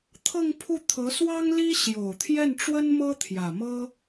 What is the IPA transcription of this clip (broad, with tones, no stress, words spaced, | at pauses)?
t̪ʰɤ˥˧ŋpʰu˥˩t̪ʰɤ˧˥ swɑ˥ŋ li˥ ɕjo˨˩ʊ̯t̪ʰjɛ˥˩n ʈ͡ʂwə˥n mɤ˥ t̪ʰjä˨˩mɤ˥